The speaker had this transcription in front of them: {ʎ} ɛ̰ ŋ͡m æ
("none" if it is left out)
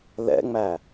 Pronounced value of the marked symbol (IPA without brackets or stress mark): l